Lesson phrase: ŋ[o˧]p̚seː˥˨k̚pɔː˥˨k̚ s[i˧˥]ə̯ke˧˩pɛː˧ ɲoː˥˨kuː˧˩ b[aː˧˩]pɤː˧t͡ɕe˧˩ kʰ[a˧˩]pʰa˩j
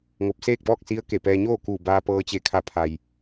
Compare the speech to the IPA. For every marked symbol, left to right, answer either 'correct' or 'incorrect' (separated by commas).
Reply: correct, correct, incorrect, correct